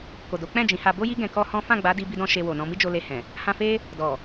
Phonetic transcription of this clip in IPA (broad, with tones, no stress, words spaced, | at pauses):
ko˨do˨˦ k͡pɛ̃˦˨ d͡ʒĩ˨˦ha˧ bo˦ji˦ ɡɛ̃˧kɔ˦hɔ̃˦ fã˦˨ɡ͡ba˨˦ di˧bi˧dɔ̃˧ ʃe˧wo˨nɔ̃˧mi˦ d͡ʒo˧le˧hɛ̃˨ | hã˧fe˦ | dɔ˨